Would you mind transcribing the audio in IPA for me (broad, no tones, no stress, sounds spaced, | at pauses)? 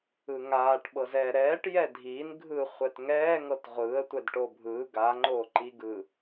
ɯ ŋ aː ʈ ɓ ɤ z ɛː ɾ ɛː ʈ j ɛ dʱ iː n ɡʱ ɯ χʷ ɛ t ŋ ɛː ŋ ɤ t ʁʷ ɯː ə̯ tʷ ɛ d ʈ o bʱ ɯː ɡ a ŋ͡ǃ oː ǃ i ɡ ɯ